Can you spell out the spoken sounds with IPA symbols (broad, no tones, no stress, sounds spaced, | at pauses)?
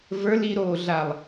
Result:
v ə˞ l i ɾ oː ɮ a lˠ